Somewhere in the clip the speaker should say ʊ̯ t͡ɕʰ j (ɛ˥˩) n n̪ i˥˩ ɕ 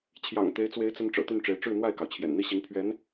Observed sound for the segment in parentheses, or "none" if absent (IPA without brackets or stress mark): ɛ̰˨˩